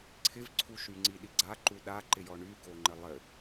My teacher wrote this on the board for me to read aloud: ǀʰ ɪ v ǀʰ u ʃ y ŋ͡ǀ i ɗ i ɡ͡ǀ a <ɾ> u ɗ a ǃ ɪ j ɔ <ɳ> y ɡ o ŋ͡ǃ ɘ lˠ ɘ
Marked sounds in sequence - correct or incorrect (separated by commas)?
incorrect, correct